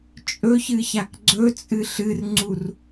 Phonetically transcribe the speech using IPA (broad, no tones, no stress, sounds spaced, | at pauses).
t͡ʃʼ ɵ ç ɨ ç a k ɡ͡ǀ ɵ t͡sʼ ɨ ɬ ɨ r ŋ͡ǀ u r